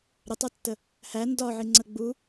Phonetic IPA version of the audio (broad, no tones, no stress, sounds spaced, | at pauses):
ɾ ə tˤ o tː ə | h æ n d ɒ ʕ i ŋ͡ǀ ə ɡ͡b u